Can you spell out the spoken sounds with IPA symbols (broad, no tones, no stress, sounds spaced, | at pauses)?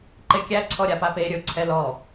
ǃ e kʲ æ ǀʰ ɔ ɾʲ a p a p e ɾʲ ɵ ǀʰ ɛ l ɔ